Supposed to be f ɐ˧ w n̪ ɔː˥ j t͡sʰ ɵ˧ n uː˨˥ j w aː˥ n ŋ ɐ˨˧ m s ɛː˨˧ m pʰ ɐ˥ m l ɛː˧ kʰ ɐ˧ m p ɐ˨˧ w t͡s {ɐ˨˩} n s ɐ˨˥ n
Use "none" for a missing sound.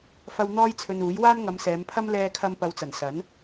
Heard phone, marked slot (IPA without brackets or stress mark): ɐ˨˩